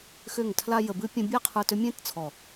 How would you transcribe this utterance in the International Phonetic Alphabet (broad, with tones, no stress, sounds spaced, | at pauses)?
x ʏ˦˨ ŋ tʰ l a˦ j ə˧ b ɨ˦ pʲ ə̃˦ bʲ a˦ qʰ ə˞˧ t ʏ˦ mʲ ẽ˦ t t͡sʰ ɔ˨